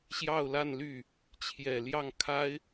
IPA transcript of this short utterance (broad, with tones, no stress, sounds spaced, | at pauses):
ɕ j ɑ˥˧ ʊ̯ l a˥˧ n l y˥˩ | t͡ɕʰ j ɛ˨˩ l j ɑ˥˩ ŋ kʰ a˥ ɪ̯